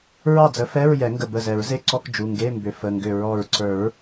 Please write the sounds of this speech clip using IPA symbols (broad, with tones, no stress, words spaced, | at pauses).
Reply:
ɹɑ˥˩d͡zə˩˥fɛ˧˥˧ɹ jɛ˨˩˦ŋɡə˧˩ bə˧˩zɛ˨˩˦ɹze˧˥˧ǀɔ˧˥˧k d͡ʒu˩˧˩ŋɡe˧˥˧mbʏ˩˥ fə˩˧˩ŋɡʏ˧˩ ɹɔ˧˩ɹǀə˞˨˩˦ɹ